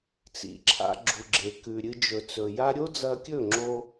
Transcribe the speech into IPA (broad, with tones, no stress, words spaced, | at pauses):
t͡sḭ˨ǁʰa̰˧ ɡ͡ǁu˨ɡ͡ǁe˨kʉ˨ ɾʲɨ˧d͡ʒɵ˨t͡sɵ˨ja˦ ɾʲo˦d͡zɐ˧kʲɵ˦˨ ŋ͡ǁo˧